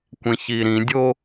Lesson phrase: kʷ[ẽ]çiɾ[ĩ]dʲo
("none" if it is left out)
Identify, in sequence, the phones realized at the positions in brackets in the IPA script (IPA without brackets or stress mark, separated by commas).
ẽ, ĩ